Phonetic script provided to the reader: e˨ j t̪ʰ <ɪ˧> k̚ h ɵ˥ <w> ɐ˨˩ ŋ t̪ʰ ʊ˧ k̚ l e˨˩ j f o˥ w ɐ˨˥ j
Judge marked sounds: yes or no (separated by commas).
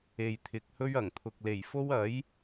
no, no